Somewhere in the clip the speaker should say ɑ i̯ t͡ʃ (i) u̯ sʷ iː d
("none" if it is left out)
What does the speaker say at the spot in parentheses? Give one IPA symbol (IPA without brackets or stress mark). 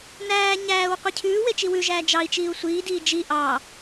iː